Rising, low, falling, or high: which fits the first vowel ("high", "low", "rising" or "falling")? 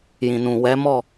low